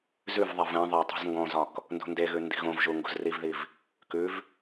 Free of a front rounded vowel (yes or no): yes